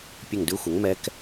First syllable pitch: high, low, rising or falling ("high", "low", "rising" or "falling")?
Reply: falling